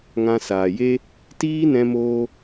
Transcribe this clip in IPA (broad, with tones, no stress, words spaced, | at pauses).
ŋã˧saː˨je˦ | tiː˦nɛ̃˧moː˧